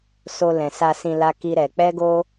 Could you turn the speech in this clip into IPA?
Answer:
s o˧ l ɛ̃˨ s a˧ s ĩ˧ l a˦ k i˦ ɾ ɛ˧ k͡p ɛ˦ ɡ o˦

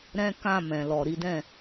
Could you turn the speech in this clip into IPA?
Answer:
ɾ ɛ̃˦ k ã˦˨ m ɛ̃˨ l ɔ˨ ɾ i˨˦ d ɛ̃˦˨

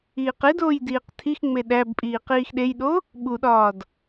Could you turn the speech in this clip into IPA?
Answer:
iː q e d oː j d iː q tʰ i x ŋ͡m e ɗ æ b pʼ iː q iː x ɗ e j ɗ o | ɓ u ɗ ɒː d

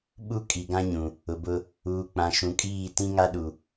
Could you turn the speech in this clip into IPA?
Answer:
ɓ u˦ kʼ i˨ ɡ ã˦ ɲ ũ˨ | ʊ˨ b ʊ˦ | uː˨ k͡p ã˨ ʃ ũ˨ kʼ iː˦˨ t ĩ˦ ŋ a˦ ɗ u˨

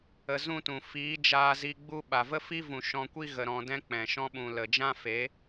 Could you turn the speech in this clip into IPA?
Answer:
ə˧ z ũ˦ t ũ˨ f iː˨˦ d͡ʒ aː˧ z i˧ ɡ͡b u˦ ɓ a˨ v ə˦ f i˦ v ũ˨ ʃ ɔ̃˧ kʷ i˦ ɣ ə˧ ɾ ɔ̃˧ d ɛ̃˦ k͡p ɛ̃˨ ʃ ɔ̃˦ ɓ ũ˨ l ə˨ d͡ʒ ã˦ f e˨˦

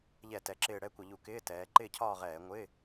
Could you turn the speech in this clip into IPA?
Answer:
ʎ ɛ˧˩˧ t ɛ˩˧ ǁ ɪː˧˩ ɽ ɛ˥˧ kʷ ʌ˧˩˧ ʎ u˧˩˧ k ɪː˧˥˧ t ɛː˩˧ ǃ ɪː˥˧ cʰ ɒː˥˧ ʁ ɛː˧˩˧ ŋʷ ɪ˧˥˧

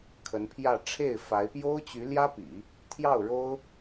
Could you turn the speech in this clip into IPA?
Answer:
kʰ ə˧˥ n pʰ j ä˥˧ ʈ͡ʂʰ e˥˩ ɪ̯ f a˧˥ ɪ̯ p j o˥ ʊ̯ t͡ɕ y˧˥ l j ä˥ p ḭ˨˩˦ | t̪ʰ j ɑ˥˩ ʊ̯ ɻ o˥ ʊ̯

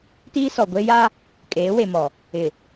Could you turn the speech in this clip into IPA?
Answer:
t iː˦ s ɔ˨ ɡʷ e˦ j a˦ | kʼ eː˨˦ w e˨ m ɔ˨ | ɪ˨

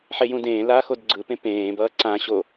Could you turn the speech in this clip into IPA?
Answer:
ħ e j ũ d ẽː l aː x o d ɡ͡ǀ ɯ p ẽ p ẽː b ʌː ǀ ã ɕ o

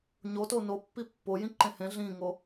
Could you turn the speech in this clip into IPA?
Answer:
ɲ o t o n o pː i pː o j ĩ ǃ ẽ h ẽ ɮ ĩ ŋ o

